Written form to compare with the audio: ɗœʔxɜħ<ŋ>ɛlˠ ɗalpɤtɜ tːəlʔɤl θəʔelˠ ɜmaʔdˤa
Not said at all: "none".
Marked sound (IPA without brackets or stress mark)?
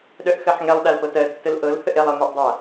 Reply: ŋ